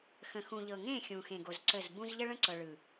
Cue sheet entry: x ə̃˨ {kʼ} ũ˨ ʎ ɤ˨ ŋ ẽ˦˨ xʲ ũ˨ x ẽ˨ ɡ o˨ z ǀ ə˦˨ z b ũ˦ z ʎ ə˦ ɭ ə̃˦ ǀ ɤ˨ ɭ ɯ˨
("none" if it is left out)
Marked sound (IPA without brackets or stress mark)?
x